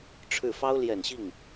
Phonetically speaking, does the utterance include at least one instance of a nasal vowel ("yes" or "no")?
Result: no